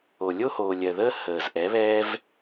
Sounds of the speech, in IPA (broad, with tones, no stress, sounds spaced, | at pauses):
o˨ lʲ o˦ h oː˨ lʲ ɜ˨ ð əː˦ h əː˨ z ʔ ɛ˨˦ β ɛː˦ v